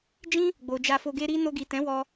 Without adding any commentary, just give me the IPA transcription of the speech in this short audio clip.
d͡ʒĩ˦ | ɡ͡bo˨d͡ʒa˧fo˧ ɡe˧ɾi˧ no˧ɡi˨ tɛ̃˨˦wɔ˧

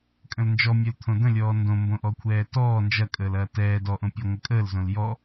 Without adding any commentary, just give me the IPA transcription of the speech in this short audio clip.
kʼə̃lnd͡ʒɔ mʲœlt̪ʰõdə̃lʲɔː ndõmbõʔɔ kʷʰɛːtɔː nd͡ʒɐkʼəːlɐː tɛː dɔʔõpʲəː ŋʷəkʼəːlzõl jɔ

